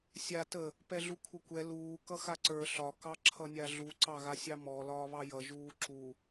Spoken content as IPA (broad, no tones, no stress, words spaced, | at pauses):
sʲa tə | pɛɮukʷʰəkʷɛ luː kʌxaǀə˞ ɬɒ kɑǁʰʌnʲaɮu ǀɑɣasʲɑmɔ lɒːβɑjʌ ʒuːǁu